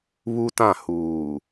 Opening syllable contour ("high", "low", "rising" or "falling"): high